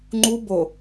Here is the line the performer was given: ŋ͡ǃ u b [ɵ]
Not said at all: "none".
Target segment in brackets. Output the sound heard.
o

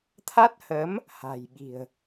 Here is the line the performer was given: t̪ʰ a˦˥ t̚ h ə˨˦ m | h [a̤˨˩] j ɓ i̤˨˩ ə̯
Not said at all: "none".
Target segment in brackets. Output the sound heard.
a̤˨˩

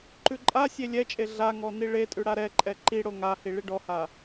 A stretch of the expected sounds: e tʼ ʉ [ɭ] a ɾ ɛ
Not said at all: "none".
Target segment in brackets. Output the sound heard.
ɽ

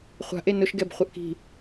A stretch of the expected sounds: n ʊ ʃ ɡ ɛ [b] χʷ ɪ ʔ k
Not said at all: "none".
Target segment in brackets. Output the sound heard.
b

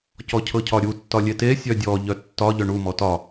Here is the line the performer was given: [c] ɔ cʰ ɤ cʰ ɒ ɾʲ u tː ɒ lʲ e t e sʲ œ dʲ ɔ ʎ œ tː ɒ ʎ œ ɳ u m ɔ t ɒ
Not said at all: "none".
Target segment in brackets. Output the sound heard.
c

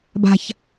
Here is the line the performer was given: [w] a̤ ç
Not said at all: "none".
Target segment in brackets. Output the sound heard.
b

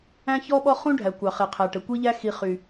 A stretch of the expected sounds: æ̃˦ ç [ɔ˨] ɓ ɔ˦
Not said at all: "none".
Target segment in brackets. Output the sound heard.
ɔ˦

